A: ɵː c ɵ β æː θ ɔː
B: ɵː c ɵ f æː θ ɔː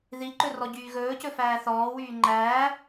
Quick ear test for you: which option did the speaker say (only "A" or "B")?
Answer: B